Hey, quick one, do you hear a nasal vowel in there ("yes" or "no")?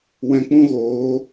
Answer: yes